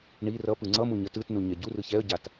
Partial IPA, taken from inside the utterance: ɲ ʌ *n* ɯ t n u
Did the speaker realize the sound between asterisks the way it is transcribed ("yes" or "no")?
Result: no